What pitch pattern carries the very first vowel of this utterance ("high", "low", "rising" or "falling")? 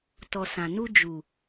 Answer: low